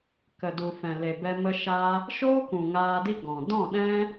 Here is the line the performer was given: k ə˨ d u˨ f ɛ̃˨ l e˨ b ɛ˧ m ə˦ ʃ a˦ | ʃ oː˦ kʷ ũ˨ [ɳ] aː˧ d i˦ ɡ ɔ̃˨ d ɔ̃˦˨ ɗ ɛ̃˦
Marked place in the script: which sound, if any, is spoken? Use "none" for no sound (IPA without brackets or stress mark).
ŋ